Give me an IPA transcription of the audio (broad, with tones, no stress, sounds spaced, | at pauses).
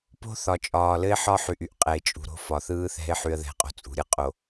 p o̤˦ θ ɒ˨ t͡ʃʼ ɒː˨ l ɘ˦ ɪ̯ ħ ɒ˦ ħ y˨ ʔ y˦ ʔ qʼ ɛ˨ ɪ̯ t͡ʃʼ ṳ˨ ɾ o̤˦ f ɒ˨ θ ɯː˦ θ ɛ̤˦ ɪ̯ ħ y˦ ə̯ ð ɛ̤˦ qʼ o̤˦ t͡sʼ ṳ˨ ɾʲ ɯ˦ qʼ o˨